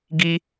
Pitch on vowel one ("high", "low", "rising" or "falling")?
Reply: high